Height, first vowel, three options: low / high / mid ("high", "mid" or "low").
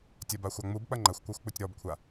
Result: low